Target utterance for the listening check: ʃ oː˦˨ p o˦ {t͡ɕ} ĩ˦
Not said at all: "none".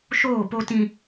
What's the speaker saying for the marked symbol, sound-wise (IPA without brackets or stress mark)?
t